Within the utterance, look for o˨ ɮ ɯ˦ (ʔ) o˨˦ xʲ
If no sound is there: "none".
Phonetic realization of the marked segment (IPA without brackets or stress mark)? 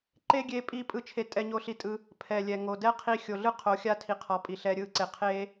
qʰ